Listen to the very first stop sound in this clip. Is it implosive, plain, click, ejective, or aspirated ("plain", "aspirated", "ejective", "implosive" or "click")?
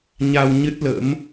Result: plain